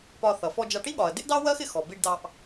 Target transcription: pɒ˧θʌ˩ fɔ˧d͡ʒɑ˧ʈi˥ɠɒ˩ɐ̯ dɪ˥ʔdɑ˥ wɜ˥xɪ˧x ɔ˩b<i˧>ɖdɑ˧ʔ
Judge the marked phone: correct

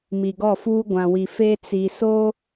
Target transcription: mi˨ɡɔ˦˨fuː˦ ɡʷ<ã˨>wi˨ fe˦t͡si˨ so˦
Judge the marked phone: correct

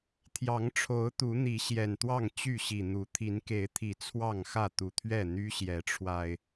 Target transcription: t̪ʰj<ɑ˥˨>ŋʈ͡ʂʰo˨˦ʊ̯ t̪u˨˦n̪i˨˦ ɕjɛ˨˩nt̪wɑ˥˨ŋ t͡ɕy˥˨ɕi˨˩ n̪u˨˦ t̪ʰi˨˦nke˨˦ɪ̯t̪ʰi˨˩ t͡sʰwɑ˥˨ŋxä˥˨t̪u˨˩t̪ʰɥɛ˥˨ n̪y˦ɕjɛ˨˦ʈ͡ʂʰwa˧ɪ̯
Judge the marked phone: incorrect: ɑ˨˦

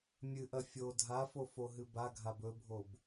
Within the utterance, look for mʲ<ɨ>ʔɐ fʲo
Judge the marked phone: correct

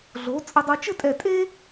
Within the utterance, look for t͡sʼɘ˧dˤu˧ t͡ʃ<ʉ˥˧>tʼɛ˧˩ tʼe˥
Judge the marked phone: incorrect: ɘ˥˧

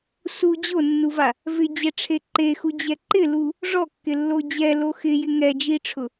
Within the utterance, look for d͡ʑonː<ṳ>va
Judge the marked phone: incorrect: u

